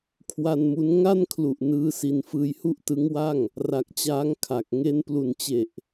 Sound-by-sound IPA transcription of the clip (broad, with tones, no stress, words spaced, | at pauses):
kʰwa˧nmu˦˥n ŋa˥˩nkʰlu˨˩ʔ nɯː˦˥si˧n fɯː˧jhu˥˩ʔtɯ˦˥ŋwa˥˩ŋ | ra˨˩k̚t͡ɕaː˦˥ŋ kʰa˨˩k̚ ŋe˦˥nplu˨˩nt͡ɕe˨˩ʔ